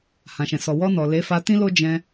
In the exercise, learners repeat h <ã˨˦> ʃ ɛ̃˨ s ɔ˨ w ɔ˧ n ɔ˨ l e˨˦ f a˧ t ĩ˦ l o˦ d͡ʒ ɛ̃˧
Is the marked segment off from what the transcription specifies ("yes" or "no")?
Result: yes